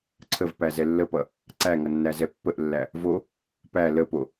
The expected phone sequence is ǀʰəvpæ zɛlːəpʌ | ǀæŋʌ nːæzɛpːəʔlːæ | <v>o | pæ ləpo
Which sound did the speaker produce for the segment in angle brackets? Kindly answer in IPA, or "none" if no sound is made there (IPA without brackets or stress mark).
v